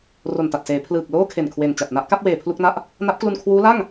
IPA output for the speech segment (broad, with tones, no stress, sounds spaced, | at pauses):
r o˨˩ n t a˨˩ t̚ s eː˩˦ pʰ l ɯː˨˩ k̚ l oː˥˩ kʰ e˨˩ n kʰ w e˨˩ n t͡ɕ a˨˩ t̚ n a˦˥ ʔ k a˦˥ p̚ w eː˨˩ pʰ l u˥˩ k̚ n a˥˩ ʔ | n a˦˥ p̚ k l u˧ n kʰ w uː˦˥ l a˥˩ ŋ